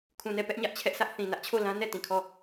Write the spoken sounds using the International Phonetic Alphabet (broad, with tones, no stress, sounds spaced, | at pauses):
kʰ ũ˨ n ɛ˦˨ p ɛ˦ ʔ ɲ ä˦ ʔ t͡ɕʰ ɛ˦ ʔ s ä˦ ʔ θ ĩ˨ n ä˦ ʔ t͡ɕʰ o˦˨ l ã˦ n ɛ˦˨ t ĩ˨ kʰ ɔ˦˨